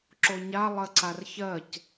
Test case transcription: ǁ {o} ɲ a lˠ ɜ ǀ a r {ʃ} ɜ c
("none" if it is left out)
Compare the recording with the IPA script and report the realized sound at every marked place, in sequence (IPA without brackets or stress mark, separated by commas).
o, ç